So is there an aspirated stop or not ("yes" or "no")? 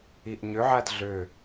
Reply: no